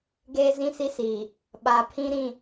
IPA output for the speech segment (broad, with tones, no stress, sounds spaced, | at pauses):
ɡ eː˦ z ĩ˦ s i˦ s iː˨ | ɓ a˨ pʰ ĩ˦ ɾ ĩ˦˨